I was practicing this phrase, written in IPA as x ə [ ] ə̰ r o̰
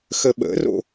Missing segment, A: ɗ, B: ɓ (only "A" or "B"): B